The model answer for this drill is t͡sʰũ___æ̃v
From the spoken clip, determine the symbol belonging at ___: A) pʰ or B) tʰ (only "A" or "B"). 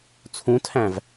B